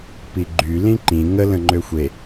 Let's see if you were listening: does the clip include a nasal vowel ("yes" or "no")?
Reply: yes